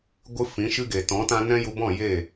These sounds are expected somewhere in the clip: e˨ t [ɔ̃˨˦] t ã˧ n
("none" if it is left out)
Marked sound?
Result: ɔ̃˨˦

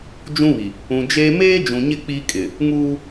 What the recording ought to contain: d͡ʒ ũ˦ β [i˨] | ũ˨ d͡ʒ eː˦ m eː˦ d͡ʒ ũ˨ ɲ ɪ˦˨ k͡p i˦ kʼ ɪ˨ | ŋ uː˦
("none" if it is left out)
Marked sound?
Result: i˨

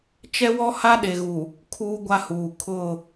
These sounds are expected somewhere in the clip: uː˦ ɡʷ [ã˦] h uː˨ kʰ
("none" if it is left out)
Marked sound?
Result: a˦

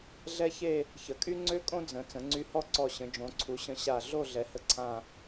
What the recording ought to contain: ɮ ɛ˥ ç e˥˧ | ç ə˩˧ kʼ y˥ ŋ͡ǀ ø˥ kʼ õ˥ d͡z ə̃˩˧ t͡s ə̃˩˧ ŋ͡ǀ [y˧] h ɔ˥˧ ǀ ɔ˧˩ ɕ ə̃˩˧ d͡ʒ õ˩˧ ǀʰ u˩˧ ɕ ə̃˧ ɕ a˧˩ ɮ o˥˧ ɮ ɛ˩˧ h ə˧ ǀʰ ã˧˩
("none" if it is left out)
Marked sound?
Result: y˧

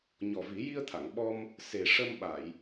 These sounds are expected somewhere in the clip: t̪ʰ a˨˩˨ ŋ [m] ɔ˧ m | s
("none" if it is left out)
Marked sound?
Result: ɓ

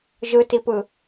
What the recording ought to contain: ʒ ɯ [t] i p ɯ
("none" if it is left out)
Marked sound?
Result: t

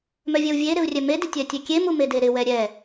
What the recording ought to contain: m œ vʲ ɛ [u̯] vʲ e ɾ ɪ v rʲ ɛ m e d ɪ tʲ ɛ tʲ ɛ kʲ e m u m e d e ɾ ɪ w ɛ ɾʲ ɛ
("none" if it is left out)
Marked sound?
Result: u̯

